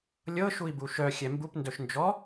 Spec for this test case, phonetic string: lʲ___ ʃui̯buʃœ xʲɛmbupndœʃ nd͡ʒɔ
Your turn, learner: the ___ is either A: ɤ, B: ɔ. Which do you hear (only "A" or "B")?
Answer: A